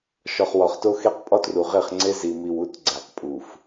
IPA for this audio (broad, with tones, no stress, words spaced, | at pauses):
ʃɒ˨χwɒ˨χto˦xe˦q pʼɒ˦tru˨ʁe˦˨χŋ͡ǀe˦ zi˨mi˨wu˦t ɡ͡ǀæ˨qpʼu˨f